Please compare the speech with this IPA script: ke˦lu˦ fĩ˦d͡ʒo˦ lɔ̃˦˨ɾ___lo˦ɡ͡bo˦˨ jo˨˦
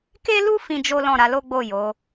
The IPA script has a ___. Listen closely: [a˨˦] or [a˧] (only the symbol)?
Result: a˧